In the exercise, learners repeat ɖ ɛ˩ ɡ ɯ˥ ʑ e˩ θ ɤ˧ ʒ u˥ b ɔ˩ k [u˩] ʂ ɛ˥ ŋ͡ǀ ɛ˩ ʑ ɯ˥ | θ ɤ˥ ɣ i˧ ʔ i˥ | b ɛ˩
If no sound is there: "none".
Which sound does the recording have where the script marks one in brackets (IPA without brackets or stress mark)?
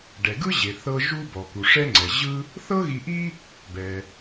u˩